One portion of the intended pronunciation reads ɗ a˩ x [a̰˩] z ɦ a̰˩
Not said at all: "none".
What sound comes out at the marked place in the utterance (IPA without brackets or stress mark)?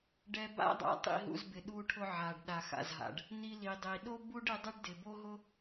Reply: a̰˩